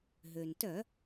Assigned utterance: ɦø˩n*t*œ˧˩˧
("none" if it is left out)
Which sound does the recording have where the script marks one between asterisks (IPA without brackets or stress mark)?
t